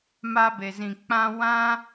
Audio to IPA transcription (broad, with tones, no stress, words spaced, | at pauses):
ma˧be˨zĩ˨ k͡pã˧wã˦